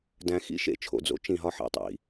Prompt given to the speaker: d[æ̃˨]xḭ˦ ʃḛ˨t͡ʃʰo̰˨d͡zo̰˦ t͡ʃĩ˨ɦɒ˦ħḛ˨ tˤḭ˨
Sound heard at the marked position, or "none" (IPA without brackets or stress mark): æ̃˨